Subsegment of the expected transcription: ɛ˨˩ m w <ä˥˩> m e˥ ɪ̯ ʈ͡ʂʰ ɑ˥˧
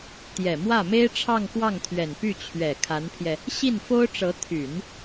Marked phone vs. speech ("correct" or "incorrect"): correct